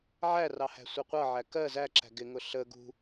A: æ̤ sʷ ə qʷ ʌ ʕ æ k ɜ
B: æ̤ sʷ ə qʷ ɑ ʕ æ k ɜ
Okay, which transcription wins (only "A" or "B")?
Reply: A